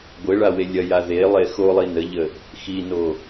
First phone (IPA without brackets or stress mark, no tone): ɡʷ